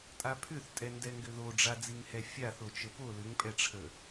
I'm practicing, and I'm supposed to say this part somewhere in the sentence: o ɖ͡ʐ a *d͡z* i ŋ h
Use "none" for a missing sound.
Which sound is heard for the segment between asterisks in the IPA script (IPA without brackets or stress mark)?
d͡z